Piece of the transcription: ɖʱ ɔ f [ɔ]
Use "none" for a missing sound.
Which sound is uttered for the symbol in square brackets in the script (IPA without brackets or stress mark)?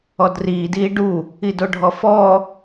ɔ